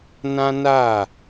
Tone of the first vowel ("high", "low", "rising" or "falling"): high